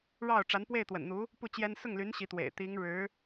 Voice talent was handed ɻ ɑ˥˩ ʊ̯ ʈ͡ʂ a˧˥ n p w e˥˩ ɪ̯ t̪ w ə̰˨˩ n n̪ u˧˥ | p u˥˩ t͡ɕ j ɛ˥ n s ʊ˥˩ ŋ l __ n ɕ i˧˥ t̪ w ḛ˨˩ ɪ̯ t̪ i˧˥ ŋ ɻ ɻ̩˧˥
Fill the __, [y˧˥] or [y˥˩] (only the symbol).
y˧˥